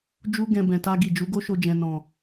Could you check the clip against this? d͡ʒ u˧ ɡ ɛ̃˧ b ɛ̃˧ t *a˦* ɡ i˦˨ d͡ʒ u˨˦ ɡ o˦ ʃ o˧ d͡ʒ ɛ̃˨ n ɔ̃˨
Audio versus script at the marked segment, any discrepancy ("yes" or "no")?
no